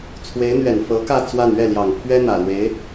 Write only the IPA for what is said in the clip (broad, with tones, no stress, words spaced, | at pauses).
t͡sʰwe˧˥ɪ̯n̪ɥɛ˨˩n fɤ˧˥kä˥˧ t͡swa˥˧n ɥɛ˥˩ljɑ˨˩ŋpʰɥɛ˥ n̪ä˨˩lwe˧˥ɪ̯